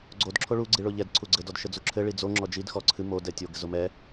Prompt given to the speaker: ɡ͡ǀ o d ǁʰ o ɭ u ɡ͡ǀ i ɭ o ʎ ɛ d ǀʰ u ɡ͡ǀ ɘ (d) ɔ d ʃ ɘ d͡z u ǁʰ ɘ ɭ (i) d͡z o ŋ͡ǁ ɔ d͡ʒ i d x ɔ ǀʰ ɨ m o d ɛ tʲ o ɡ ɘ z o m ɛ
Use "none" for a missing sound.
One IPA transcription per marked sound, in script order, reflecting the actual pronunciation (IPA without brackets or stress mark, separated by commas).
d, i